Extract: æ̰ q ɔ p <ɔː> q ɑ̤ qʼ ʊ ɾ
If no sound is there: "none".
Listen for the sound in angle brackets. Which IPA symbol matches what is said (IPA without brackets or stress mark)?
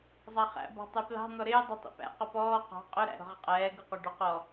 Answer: ɔː